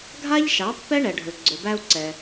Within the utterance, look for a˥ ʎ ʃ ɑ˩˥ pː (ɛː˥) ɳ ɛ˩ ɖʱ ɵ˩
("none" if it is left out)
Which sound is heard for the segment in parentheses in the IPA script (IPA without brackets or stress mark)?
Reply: ɛ˥